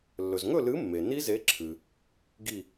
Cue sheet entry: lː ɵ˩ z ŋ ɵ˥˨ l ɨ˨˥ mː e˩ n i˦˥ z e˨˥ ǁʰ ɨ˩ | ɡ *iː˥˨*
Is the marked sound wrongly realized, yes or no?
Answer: yes